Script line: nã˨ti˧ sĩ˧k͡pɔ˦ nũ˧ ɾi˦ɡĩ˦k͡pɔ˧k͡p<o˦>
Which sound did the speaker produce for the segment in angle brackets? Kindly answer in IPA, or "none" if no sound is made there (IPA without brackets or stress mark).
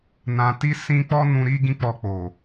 o˨